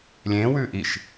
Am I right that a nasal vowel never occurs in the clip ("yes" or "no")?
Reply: no